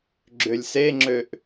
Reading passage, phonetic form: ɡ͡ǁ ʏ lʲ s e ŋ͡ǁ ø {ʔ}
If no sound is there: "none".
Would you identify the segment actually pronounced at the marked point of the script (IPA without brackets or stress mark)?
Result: ʔ